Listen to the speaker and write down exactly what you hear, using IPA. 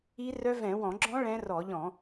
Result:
i˦˥ r œ˦˥ v ɛ̃˧˩˧ w ɔ̃˧˩˧ ɡ͡ǁ ɔ̃˦˥ ɭ ɛ̃˦˥ r ɔ˧˩˧ ʎ ɔ̃˧˩˧

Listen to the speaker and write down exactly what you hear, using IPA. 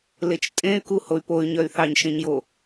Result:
l e t͡ʃ tʼ ẽ y̯ k u h o y̯ p o y̯ ɲ œ y̯ θ ɑ ɲ ʃ ẽ ɲ j o

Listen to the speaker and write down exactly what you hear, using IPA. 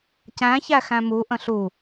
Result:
c æ̃ ç æ x æ̃ m u ʔ ə̃ ɬ u

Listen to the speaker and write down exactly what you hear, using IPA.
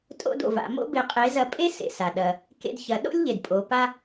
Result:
tʼ o̰˥ d o̰˩ v a̰˩˧ m o̰˥ b e˧ qʼ e˧˥ z ɐ˧˥ pʼ e˥ s ḛ˩ s a˩ ɗ ɐ˩ | k ḛ˧ d ç ɐ˩˧ ɗ o̰˥ lʲ ʎ e˩ d pʼ o˩˧ p a˥

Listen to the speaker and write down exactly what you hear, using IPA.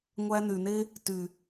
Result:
ŋʷ æ˧ n y˨ n e˦ | t y˨

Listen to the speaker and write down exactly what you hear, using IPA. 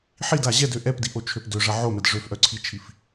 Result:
ħ i d a ʑ ɛ d ø ʔ ɛ p d i ʔ o t͡ʃʰ ø p d ø ʐ ɐ ʕ o m ɛ d ʐ ø f ʔ œ ǀʰ i t͡ʃʰ i f

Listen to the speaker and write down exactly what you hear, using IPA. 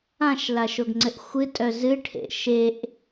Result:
ã ʃ l a ʃ o ɡ ŋ͡ǀ ɘ ʔ xʷ ɨ tʼ œ z ɨ ʈʰ ḛ ʃ e ʔ

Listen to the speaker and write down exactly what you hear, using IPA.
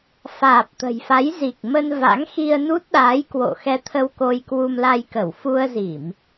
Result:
f aː˨˩ p̚ t̪ ə̤˨˩ j f a˨˦ j z i˨˩ k̚ m ə˧ n v a̰˧˥ ŋ x i˧ ə̯ n u˦˥ t̚ ɗ aː˨˦ j k w o̰˧˨ x ɛ˧ t̪ʰ ə˧ w k o˧ j k w u˧ m l a˧ j k ə˧˩ w f u˧ ə̯ z i˧˩˨ m

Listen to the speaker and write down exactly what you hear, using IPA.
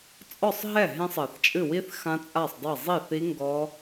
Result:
t͡sʼ ɔ˥˩ sˤ ɦ ɛ˥˩ ɦ ẽ˦˥ sˤ ɐ˨˩˦ θ t͡ʃʼ ɨ˥˩ w i˦˥ θ x ã˦˥ t͡sʼ a˥˩ sˤ dˤ e˥˩ zˤ i˥˩ θ i˦˥ ŋ ɡ ɔ˦˥

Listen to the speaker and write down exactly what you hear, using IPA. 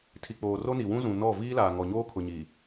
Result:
tʰ i˨ k͡p oː˨ r o˦ n i˨ w ũ˦ z ũ˨ n ɔ˦˨ v iː˦ l aː˨ ŋ ɔ˨ ɲ oː˦ kʰ ʊ˨ ɲ i˨

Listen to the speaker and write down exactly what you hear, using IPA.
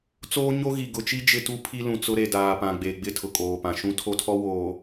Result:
t͡s oː˦ ɲ o˦ ɣ i˨ ɡ ʊ˨ t͡ʃ i˦ d͡ʒ ɪ˦ t u˦ pʰ i˦ l ũ˨ t͡s ʊ˦ ɾ e˨ d aː˨ p ã˨ ɡ͡b e˨ ɡ͡b ɪ˦ tʰ ʊ˨ kʼ oː˨ p ã˨ ʃ ũ˦ tʰ o˦ tʰ ɔ˦ w oː˨

